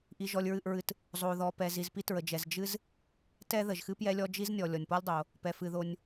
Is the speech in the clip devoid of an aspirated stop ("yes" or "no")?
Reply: yes